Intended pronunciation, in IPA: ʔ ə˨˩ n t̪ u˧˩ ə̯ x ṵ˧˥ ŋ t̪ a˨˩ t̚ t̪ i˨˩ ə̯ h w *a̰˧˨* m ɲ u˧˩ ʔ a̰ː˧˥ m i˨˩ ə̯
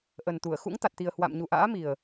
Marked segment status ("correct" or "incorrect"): correct